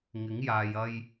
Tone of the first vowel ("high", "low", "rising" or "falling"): rising